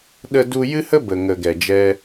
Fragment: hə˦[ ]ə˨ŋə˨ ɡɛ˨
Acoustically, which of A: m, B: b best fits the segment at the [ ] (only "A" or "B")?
B